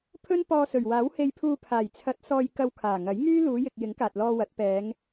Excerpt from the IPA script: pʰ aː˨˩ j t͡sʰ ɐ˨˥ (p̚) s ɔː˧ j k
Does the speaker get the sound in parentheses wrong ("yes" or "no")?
yes